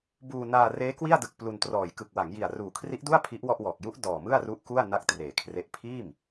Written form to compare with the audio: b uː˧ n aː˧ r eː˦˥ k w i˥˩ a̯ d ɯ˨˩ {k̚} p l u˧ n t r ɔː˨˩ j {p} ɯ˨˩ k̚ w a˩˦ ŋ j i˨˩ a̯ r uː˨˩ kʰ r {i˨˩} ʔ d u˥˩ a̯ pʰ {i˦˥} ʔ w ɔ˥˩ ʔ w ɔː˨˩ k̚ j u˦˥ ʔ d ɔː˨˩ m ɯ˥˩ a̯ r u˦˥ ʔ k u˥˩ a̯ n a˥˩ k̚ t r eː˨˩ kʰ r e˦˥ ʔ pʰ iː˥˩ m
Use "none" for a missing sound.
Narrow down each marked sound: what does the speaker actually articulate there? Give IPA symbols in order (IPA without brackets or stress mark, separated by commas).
k̚, k, i˦˥, i˦˥